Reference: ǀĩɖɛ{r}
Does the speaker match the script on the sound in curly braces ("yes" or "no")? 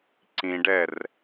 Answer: yes